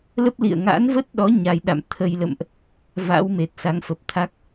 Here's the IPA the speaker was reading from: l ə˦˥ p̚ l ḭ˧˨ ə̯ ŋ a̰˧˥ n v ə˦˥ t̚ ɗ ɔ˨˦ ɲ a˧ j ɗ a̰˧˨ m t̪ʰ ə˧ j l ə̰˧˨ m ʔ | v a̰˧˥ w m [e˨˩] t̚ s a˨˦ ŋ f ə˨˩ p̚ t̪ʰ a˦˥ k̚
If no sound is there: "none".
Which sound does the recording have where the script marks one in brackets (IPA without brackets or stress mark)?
e˨˩